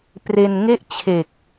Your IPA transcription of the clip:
p r e˧ n ŋ e˥˩ ʔ t͡ɕʰ e˨˩ k̚

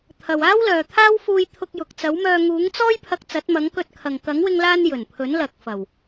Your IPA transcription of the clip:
t̪ʰ ɐ˨ w aː˥ w l œː˨ t̪ʰ aː˥ w f uː˧ j t̪ʰ ʊ˧ k̚ j ʊ˨ k̚ t͡s ɐ˨˥ w m œː˧ ŋ uː˨˥ ŋ t͡s ɔː˥ j pʰ ɐ˧ k̚ t͡s ɐ˨˥ t̚ m ɐ˨˥ ŋ k ɵ˧ t̚ kʰ ɐ˨ ŋ k ɐ˨˥ ŋ w ɪ˧ ŋ l aː˧ n j ɵ˨˩ n pʰ ɵ˨˥ n l ɐ˨ k̚ f ɐ˨˩ w

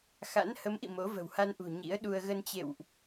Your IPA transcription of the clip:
x a̰˧˥ n h ə˨˦ m ʔ ḭ˧˨ m o˨˦ v ə̤˨˩ w h a˧ n ʔ ṳ˨˩ ɲ ḭ˧˥ ə̯ ɗ u˧ ə̯ ɣ ə˧ n t͡ɕ ḛ˧˨ w ʔ

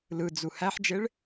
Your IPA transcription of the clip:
l ɯ d͡z u h æ ħ d͡ʒ e ɭ

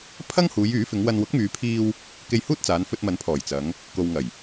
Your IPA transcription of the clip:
pʰ ɐ˥ ŋ h uː˨˧ j yː˨˥ f ɪ˨˧ ŋ w ɐ˧ n w ʊ˨˥ k̚ m yː˨˧ pʰ iː˧ w | k e˧ j h uː˥ t̚ t͡s aː˨˧ n f ɵ˧ t̚ m ɐ˨˥ n pʰ ɔː˨˩ j t͡s ɐ˨˧ ŋ | k o˨ w ŋ ɐ˨˩ j

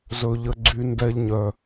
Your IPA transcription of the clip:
z ɵ˦ ʎ ə˦ ɡ͡ǀ y˦ n d ɛ˦ ʎ ɲ œ˦

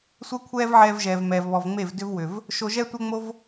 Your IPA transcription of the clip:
sʷ ɛ˦ kʷʰ ɛː˦ v ʕ ɛː˧ v ʒ ɛː˨ v m ɛː˨ v β ɔ˨ v ŋ͡m e˦˨ v d ʏ˦ v w ʏ˨ v | ʃ o˧ ʒ ɛ˦ tʷ ɛ˦ ŋ͡m o˦ v

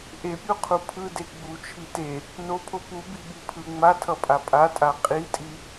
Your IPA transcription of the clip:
ʔ e pʲ u qʰ u pʰ ɯ d e ɡ͡b u t͡ʃʰ i t e | n o pʰ o p u b i ɓ i pʰ ɯ ŋ͡m a tʰ ʌ pʼ a pʼ a tʼ a qʼ i tʼ i

